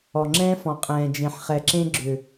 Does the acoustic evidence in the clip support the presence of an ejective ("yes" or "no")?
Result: yes